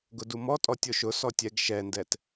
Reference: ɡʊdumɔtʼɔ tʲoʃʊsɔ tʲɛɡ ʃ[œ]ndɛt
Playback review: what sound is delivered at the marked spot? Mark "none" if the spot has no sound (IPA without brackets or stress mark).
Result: ɛ